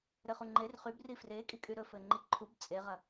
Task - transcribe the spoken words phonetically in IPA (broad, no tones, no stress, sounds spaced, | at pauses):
ɾ ɘ χ u ŋ͡ǃ e r χ y b r i f r e kʼ i kʼ y ɾ ɵ f ɘ ŋ͡ǃ i ǃʰ u b t͡sʼ e ʁ ɐ